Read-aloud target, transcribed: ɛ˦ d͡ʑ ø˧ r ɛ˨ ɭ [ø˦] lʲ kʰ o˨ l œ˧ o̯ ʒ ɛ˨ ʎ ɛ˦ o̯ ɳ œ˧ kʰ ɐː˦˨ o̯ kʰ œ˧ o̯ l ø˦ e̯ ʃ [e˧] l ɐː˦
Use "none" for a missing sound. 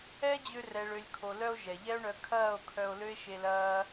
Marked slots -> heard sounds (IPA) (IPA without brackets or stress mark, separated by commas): ø˨, e˧